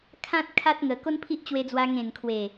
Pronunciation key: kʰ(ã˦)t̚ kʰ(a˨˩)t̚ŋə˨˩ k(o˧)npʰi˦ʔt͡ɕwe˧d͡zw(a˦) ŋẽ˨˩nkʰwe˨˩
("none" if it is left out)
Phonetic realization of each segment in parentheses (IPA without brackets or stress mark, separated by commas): ã˦, a˦, o˦, a˧